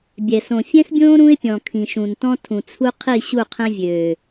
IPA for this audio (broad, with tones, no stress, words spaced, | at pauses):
bʲɛ˨sõ˨ fʲɛ̃˦sbʲõː˦ ɾũ˦ɪ̯pʲɔ̃˨ kʰĩ˨ʃũ˨ntɔ̃˦tʰũ˨ t͡sʰu˦ qʰi˦˨ ɕu˦˨qʰɛ̃˦vʲøː˨